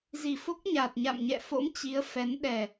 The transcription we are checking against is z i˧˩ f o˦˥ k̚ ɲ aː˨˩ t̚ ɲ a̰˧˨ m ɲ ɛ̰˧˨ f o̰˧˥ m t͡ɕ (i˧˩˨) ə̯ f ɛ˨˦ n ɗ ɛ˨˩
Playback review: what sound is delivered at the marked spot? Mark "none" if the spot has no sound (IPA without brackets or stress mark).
i˨˦